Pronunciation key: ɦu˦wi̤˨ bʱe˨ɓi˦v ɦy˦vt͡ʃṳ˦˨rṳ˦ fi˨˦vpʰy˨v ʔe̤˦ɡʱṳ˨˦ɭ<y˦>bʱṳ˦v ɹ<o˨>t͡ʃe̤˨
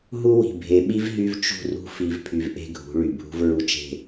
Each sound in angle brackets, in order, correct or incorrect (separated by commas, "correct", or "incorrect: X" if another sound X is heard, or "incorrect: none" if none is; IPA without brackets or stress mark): incorrect: y˨, incorrect: u˨